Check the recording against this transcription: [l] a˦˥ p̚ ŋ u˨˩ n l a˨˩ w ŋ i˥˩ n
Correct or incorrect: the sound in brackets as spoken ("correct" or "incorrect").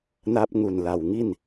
incorrect